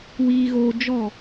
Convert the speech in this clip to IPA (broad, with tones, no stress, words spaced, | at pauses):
wiː˧ɣoː˧ d͡ʒɔ˦˨